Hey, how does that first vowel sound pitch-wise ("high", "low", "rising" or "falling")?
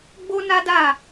high